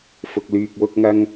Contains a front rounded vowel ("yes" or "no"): yes